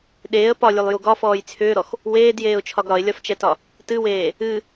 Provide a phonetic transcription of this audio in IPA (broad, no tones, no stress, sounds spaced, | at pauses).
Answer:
ɗ eː ə̯ p ɒ lʲ u lˠ j u ɡ ɒ f ɔː j t͡sʰ ʏː ɾ ɔ x | w eː d j eː ʊ̯ t͡ʃʰ ɒ ɡ ɾ ɒ ɪ̯ lʲ ɒ f t͡ʃ ɛ t ɒ | t ɨ w eː | ɨ